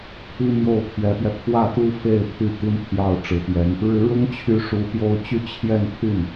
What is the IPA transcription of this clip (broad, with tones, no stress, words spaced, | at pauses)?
pʰi˥mjo˥˩ʊ̯pʰɥɛ˧˥pɥɛ˧ pʰwä˥˩t̪u˥ fe˥˧ɪ̯pʰy˥˩ t̪i˥npʰjɑ˥˩ʊ̯ʈ͡ʂɻ̩˧˥pjɛ˧˥n | ɻɻ̩˧˥ɻʊ˥ŋt͡ɕʰy˧˥ ʂu˧˥pjo˥ʊ̯ t͡ɕy˥˧t͡ɕʰjɛ˥˧npʰy˥˩n